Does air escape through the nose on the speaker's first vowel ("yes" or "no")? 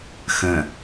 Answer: yes